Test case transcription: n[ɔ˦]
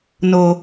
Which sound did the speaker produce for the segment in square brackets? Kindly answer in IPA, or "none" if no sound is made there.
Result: o˦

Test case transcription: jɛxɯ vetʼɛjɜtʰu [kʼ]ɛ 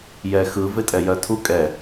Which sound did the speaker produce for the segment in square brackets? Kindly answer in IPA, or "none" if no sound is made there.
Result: kʼ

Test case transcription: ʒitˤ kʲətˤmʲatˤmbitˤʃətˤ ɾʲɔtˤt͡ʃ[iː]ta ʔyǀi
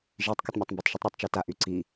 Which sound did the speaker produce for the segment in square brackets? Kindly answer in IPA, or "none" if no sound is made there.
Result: i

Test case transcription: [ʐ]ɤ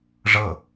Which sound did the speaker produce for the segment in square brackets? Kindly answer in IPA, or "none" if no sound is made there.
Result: ʐ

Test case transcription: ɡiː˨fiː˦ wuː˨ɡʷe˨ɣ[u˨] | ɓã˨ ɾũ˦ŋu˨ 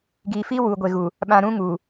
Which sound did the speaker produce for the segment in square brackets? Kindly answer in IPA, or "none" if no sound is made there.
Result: u˨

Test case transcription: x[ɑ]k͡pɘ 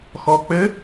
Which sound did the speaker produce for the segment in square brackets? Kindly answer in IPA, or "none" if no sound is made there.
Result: ɔ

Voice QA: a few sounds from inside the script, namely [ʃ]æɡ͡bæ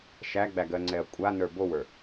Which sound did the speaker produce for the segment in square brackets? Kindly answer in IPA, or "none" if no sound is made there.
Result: ʃ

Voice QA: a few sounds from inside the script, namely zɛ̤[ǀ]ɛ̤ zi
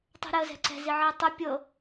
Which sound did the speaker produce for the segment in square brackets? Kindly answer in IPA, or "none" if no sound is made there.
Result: ǀ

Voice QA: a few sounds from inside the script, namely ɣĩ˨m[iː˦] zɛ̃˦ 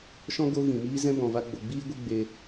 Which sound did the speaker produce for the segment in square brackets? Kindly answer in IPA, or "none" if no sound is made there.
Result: iː˦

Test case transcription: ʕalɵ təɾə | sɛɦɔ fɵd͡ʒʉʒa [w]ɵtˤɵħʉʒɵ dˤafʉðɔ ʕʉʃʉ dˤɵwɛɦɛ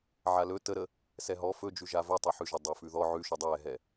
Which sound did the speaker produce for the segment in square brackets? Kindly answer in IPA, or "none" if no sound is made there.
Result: v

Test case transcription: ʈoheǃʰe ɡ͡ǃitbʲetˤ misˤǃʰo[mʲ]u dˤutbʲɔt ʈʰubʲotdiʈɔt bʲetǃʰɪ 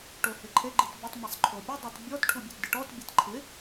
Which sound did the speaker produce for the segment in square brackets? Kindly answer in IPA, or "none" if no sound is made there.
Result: pʲ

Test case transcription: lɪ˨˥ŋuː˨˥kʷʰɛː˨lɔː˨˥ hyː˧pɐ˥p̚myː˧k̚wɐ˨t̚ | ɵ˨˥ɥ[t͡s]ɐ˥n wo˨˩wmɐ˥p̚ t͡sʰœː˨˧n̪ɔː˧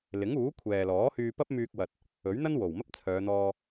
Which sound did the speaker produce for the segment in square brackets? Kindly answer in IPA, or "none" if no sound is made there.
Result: n̪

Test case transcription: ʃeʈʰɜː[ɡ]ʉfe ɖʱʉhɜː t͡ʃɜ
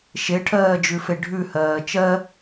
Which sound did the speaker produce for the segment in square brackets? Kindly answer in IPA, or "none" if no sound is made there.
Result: d͡ʒ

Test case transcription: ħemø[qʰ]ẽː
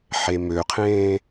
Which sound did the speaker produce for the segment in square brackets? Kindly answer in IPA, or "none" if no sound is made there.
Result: qʰ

